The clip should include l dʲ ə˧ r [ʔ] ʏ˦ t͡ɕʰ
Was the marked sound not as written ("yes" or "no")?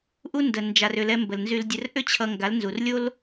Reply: no